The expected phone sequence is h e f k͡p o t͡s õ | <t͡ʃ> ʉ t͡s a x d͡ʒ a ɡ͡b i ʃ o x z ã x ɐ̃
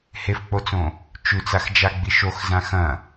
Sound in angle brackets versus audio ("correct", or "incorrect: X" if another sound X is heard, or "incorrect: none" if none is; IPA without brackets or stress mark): correct